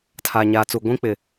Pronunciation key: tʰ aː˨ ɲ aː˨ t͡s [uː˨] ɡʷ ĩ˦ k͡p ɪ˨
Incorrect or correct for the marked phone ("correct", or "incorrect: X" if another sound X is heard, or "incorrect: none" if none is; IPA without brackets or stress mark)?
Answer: incorrect: u˨